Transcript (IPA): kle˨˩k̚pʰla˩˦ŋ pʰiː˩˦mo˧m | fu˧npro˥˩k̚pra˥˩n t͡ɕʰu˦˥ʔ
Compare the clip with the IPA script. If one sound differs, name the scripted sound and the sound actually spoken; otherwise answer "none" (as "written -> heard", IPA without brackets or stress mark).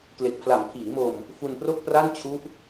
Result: ŋ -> m